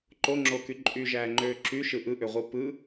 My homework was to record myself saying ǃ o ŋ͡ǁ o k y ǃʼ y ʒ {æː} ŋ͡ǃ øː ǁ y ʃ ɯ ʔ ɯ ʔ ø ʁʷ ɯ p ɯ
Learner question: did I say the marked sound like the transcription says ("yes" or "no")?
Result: yes